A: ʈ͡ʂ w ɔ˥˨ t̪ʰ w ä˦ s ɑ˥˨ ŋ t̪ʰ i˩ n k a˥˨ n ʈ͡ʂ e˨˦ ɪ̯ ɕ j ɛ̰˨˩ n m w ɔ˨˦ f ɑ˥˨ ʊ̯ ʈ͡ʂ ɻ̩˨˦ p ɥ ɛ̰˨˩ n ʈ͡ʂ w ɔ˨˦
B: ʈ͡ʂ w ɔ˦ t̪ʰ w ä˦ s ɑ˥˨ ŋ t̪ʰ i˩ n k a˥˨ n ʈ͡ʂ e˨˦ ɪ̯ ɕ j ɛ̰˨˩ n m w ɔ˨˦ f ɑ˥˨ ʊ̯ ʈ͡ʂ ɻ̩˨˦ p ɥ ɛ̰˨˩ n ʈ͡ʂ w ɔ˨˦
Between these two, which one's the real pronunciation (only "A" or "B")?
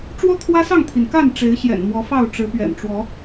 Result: B